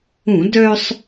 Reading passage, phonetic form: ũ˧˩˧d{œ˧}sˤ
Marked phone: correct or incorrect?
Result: correct